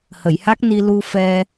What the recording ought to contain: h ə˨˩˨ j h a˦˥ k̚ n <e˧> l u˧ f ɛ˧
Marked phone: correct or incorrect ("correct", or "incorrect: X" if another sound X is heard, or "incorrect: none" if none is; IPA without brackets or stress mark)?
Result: incorrect: i˧